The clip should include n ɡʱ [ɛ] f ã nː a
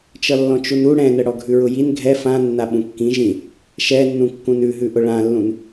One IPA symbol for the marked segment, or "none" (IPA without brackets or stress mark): ɛ